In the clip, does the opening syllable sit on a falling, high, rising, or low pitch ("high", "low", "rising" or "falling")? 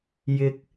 high